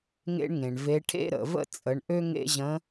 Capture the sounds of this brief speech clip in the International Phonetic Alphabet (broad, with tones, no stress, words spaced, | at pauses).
ŋḛ˥ɳŋẽ˩ɳve˧˥ ʈʰḛ˥ɾə̰˩və̰˥ t͡sʼə˩˧ɳʔø˥ ŋḛ˥ʑə̃˧˥